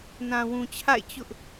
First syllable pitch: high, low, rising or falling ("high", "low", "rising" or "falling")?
low